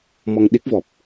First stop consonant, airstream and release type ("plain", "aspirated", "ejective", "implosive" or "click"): implosive